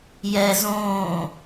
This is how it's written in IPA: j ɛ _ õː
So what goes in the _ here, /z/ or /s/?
z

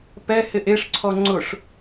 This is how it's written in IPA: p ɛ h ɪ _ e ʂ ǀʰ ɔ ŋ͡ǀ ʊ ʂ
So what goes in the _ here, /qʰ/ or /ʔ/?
ʔ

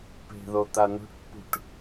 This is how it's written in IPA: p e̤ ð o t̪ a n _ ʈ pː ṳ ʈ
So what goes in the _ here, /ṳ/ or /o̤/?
o̤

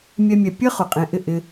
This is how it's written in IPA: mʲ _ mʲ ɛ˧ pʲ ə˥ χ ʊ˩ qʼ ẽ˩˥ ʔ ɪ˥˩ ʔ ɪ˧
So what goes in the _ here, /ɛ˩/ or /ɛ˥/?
ɛ˥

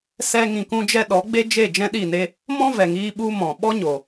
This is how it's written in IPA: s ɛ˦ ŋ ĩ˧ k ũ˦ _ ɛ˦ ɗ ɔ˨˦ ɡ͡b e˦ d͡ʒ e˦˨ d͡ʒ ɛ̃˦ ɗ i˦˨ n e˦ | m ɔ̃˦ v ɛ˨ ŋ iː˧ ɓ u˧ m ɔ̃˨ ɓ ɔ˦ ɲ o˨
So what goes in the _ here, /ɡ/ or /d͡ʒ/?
d͡ʒ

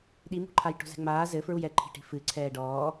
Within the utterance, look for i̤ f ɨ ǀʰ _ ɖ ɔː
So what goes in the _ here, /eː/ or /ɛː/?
ɛː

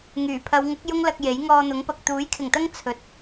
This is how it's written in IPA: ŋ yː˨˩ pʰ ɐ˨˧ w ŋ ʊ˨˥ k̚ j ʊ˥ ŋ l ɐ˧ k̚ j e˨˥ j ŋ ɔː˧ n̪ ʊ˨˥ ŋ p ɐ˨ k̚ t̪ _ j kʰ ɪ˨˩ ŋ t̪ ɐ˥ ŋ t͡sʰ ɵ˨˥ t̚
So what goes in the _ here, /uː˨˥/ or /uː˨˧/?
uː˨˥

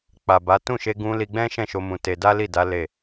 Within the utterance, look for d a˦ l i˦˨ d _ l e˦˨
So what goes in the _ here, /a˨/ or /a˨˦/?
a˨˦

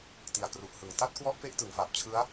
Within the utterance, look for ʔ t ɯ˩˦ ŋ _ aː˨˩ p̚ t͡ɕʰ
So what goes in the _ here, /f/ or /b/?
f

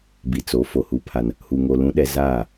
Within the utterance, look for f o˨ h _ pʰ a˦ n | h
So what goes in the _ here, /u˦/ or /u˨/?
u˦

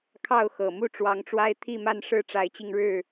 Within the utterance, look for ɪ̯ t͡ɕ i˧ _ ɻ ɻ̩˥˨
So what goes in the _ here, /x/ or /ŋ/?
ŋ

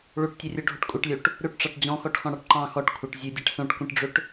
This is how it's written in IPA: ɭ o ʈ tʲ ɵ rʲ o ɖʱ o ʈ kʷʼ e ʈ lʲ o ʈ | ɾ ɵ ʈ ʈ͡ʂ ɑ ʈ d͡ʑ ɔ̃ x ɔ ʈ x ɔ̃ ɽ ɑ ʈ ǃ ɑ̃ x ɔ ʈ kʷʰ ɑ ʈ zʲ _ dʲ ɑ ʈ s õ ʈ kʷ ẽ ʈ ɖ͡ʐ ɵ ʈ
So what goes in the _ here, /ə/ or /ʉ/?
ʉ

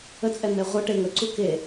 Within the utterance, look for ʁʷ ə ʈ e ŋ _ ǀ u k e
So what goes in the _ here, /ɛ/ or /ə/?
ə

